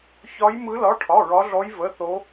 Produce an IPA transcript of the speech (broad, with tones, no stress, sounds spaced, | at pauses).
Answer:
ç ɒ˦˥ j m ɯ˦˥ l ɒ˧˥˧ ʈʰ ɒ˧˥˧ ɹ ɒ˦˥ ɮ ɔ˦˥ j v ə˧˥˧ θ o˦˥